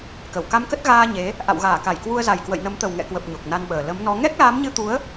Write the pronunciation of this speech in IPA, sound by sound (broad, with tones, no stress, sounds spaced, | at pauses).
k ə˧˩ w k a˧ m k ə˦˥ t̚ ɣ aː˧ ɲ e˨˦ | ʔ a̰˧˨ w ɣ aː˧˩ k a˧˩ j k w u˧ ə̯ z a˨˩ j k w ə̰˧˨ j n ə˨˦ m t̪ ə˨˩ w ŋ ɛ̰˧˨ k w ə˨˩ p̚ ɲ o˨˩ k̚ n a˧ n ɓ əː˨˩ l ə˨˦ m n ɔ˨˦ ŋ ɛ˦˥ k̚ l aː˨˦ m ɲ ɨ˧ t̪ u˨˦ ə̯